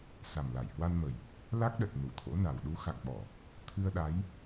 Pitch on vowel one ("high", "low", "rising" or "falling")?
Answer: low